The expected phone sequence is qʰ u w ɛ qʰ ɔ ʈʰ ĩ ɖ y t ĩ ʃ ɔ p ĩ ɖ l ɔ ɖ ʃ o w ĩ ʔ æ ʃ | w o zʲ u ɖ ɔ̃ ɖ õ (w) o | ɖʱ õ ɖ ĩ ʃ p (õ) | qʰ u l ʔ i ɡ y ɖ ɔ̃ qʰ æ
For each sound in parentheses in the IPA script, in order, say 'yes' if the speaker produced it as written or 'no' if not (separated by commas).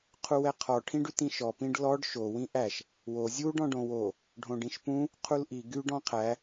yes, no